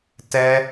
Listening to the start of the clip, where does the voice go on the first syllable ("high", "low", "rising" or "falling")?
high